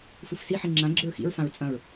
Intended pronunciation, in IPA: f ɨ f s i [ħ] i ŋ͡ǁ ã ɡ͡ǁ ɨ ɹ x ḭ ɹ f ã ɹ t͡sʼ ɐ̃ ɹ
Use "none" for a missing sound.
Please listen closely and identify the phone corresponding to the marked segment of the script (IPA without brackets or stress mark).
ħ